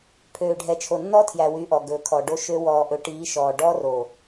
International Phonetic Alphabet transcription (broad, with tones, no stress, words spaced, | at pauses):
pʰøː˨ɖʱɛ˨t͡ʃʰo˨nːɔ˦ tʰjæ˨wy˨˦ ʔɔ˨ɡɵː˨kʰɔ˨ɖo˦ ʃø˦ wɔː˨ʔɵ˨˦ʈiː˨˦ ʃɔː˨ɖɔ˦ro˨